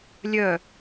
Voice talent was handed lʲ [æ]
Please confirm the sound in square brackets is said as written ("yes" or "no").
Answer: no